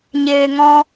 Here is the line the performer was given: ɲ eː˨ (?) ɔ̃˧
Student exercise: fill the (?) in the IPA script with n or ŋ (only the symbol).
ŋ